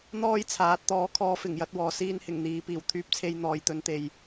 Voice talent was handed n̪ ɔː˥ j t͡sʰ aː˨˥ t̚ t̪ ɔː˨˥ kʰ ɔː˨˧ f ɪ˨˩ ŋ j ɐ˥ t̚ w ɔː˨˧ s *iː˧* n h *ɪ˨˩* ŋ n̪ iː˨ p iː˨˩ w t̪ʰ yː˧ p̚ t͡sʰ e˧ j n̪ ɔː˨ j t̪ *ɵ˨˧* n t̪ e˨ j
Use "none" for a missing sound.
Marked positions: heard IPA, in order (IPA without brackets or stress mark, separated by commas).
iː˥, ɪ˨˩, ɵ˨˧